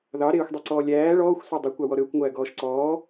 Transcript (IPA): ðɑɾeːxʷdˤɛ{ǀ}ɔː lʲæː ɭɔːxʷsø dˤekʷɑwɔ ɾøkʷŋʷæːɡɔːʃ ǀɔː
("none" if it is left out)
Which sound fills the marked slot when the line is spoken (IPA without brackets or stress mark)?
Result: ǀ